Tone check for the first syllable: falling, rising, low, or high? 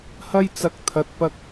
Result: high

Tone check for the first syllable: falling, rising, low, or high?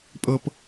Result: low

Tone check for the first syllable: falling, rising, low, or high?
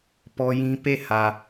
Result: high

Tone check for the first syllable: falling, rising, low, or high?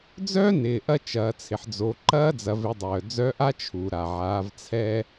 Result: high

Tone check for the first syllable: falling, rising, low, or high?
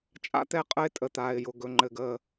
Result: high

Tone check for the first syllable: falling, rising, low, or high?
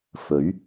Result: rising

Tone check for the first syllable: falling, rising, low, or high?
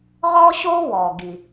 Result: high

